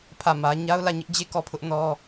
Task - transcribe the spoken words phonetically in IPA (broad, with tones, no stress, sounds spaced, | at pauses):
pʰ ä˦˨ m ä˦ ɲ a˦ ʊ̯ l ä˦˨ ɲ ɪ˦ ʔ d͡ʑ e˦˨ k ɔ˦˨ pʰ ʊ˦ ʔ n ɔ˦